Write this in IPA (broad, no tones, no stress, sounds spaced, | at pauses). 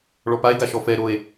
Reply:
ɭ ɔ p a e̯ ɡ a ʃ ɔ f ɛ ɾ o e̯